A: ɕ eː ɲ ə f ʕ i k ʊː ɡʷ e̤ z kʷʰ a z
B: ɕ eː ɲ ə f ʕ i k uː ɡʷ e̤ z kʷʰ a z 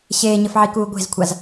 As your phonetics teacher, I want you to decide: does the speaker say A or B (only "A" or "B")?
B